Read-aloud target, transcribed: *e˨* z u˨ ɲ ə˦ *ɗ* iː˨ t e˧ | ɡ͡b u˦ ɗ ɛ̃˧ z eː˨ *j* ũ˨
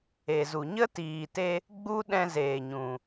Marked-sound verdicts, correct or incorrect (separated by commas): correct, incorrect, incorrect